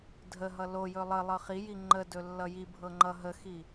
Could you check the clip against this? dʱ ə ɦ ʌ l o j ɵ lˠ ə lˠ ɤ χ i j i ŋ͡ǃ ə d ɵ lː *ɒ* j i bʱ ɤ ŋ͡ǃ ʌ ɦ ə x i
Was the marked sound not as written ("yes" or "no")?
yes